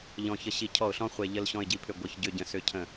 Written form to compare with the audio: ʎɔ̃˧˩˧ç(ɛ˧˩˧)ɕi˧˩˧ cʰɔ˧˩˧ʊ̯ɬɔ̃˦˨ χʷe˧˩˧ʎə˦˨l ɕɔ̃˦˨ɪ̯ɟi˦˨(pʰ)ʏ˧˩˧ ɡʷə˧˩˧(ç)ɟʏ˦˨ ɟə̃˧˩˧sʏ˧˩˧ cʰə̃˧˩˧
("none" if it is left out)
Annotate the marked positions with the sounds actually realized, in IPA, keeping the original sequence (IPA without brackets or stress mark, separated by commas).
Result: ə˧˩˧, pʰ, ç